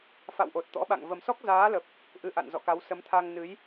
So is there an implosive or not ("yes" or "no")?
yes